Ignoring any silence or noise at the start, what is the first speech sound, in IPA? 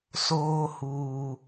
s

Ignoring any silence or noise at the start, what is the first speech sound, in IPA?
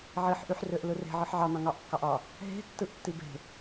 ʕ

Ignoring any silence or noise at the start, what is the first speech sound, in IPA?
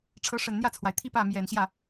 ʈ͡ʂʰ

